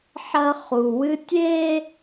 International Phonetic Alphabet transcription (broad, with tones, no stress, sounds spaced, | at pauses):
ħ ɐ˦ χ u˨ w ɨ˦ tʲ e˦